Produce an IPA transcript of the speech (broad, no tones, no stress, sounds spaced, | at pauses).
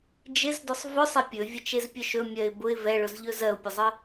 d͡ʒ ɪ z d ʊ sˤ v ʊ sˤ ɛ pʲ ɵ vʲ ə t͡ʃ e z pʲ ɵ ʃ ɵ mʲ ɜ ɪ̯ b ʊ ɪ̯ v ɛ ɭ ʊ z ʎ ɵ z ɜ ʊ̯ pʲ ɵ zˤ ə